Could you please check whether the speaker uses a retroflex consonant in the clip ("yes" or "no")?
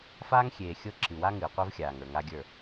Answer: no